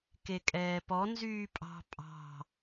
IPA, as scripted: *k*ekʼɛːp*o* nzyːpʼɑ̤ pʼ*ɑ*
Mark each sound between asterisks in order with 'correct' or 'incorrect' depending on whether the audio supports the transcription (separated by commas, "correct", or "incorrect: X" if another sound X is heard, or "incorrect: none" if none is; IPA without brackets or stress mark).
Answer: correct, incorrect: ɔ, incorrect: ɑ̤